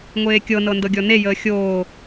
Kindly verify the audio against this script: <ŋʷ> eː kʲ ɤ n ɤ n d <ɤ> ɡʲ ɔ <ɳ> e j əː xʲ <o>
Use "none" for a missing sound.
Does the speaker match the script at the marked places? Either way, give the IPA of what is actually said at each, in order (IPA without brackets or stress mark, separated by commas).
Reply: ŋʷ, ɤ, n, oː